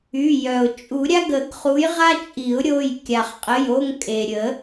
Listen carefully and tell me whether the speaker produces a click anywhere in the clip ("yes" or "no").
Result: no